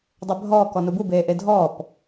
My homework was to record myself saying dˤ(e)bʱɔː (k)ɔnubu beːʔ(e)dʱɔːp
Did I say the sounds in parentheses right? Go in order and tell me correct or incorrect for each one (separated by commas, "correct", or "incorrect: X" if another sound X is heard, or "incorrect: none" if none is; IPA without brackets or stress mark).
correct, correct, correct